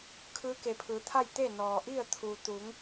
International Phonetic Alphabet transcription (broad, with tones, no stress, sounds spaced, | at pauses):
kʰ ɯː˧˥ k e˩ pʰ ɯː˩˧ t̪ʰ a˥˨ j t̪ e˥˨ n ɔː˩ ʔ i˥˨ ə̯ t̪ʰ u˩ t̪ u˩˧ ŋ